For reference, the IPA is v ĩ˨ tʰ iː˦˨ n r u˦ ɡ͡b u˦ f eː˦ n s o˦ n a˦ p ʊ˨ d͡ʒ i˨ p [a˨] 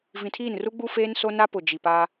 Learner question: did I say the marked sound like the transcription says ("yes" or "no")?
no